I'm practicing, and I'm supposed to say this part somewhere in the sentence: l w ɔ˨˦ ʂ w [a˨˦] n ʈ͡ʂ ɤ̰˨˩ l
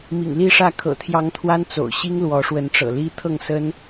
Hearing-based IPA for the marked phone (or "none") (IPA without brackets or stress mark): ə˨˦